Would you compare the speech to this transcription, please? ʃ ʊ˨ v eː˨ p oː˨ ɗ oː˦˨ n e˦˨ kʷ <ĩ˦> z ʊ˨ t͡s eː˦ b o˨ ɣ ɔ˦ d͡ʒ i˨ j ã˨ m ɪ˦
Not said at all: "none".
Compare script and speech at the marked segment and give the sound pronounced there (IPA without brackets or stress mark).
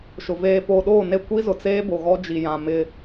i˦